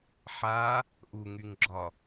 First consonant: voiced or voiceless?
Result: voiceless